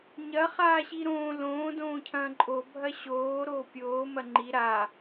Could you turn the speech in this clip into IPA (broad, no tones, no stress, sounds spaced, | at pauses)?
ɲ ɐ χ aː ɕ i ɾ õː l õː d õː cʰ ɐ̃ː ǃʼ o bʱ ɐ ɕ oː ɾ oː pʲ oː m ɐ ŋ͡ǃ i ɾ a